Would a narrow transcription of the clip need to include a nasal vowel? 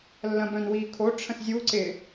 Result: yes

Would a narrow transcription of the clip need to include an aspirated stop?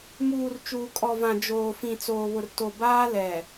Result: no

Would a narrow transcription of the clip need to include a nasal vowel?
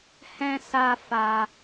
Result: yes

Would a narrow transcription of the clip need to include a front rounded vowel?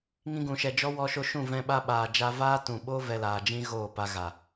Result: no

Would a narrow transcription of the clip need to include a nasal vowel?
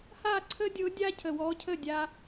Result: no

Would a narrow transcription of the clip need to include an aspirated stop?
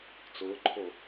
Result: yes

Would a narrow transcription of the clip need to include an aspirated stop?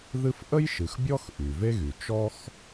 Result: no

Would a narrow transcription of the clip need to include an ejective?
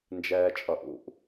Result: yes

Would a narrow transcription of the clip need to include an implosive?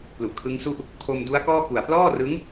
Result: no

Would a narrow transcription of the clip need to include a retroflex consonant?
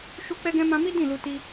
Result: no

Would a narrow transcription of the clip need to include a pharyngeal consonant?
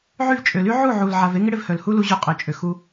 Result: yes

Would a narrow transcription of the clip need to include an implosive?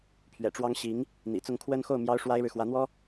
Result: no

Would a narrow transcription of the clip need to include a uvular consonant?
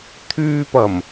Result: no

